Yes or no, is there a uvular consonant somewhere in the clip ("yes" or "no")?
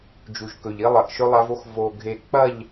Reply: no